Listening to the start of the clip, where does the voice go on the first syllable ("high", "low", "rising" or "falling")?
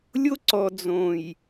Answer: high